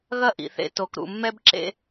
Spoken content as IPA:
ɣ ɐ˦ ʔ ḭ˨ θ ḛ˦ t o˨ k ɾ ṵ˨ mː ɛ˦ b ǁ ḛ˦

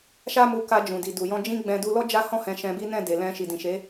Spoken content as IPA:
ʃ a˦ m u˧ k a˧ d͡ʒ ũ˨ d i˨ d u˨ j ɔ̃˧ d͡ʒ ĩ˦ ɡ͡b ɛ̃˧ d u˧ l ɔ˦ d͡ʒ a˦ h ɔ̃˦˨ h ɛ̃˧ ʃ ɛ̃˧ b i˦ n ɛ̃˦˨ d e˨ l ɛ̃˧ ʃ i˨ d ĩ˨ ʃ e˨˦

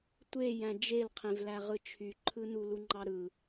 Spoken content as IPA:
tʷ e j æ̃ d͡ʒ e l qʰ ẽ v l æ ʁ ɯ t͡ʃʰ y ǃʰ ɯ n u l u ŋ͡ǃ ɑ ɾ ɯ

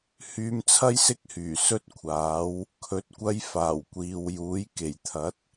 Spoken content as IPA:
h yː˧ m t͡sʰ ɐ˥ j s ɪ˥ k̚ h yː˨˩ s ɵ˥ t̚ kʷʰ aː˨˥ w | kʰ ɵ˨˥ t̚ kʷ ɐ˧ j f aː˨˩ w kʷ iː˨ w j uː˨˥ j k e˨˩ j t̪ʰ ɐ˨˥ t̚

